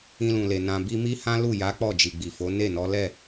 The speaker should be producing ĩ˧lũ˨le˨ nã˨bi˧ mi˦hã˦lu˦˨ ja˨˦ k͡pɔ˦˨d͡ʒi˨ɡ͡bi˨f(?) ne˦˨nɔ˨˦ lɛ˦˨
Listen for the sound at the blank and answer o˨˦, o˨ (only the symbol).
o˨˦